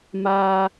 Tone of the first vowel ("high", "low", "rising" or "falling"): high